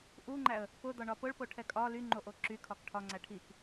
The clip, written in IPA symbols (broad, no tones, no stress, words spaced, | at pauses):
ʔuŋ͡ǃæə̯ | pʊd̪ɒɳɒ pʊɭpoʈʰɛ kʼɒ lyŋ͡ǃoʔo ǁykʰɒk ʈʰɒŋ͡ǀæ ʈʰik